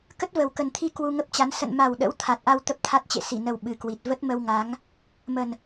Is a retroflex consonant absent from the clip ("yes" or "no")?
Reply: yes